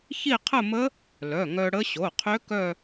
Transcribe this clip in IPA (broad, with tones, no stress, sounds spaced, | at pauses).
ç i˥˧ qʰ ə˥˧ m ə˦˥ | l œ˩˧˩ ŋ œ˧ ɽ ə˦˥ ɕ o˩˧˩ qʰ ø˦˥ k œ˥˧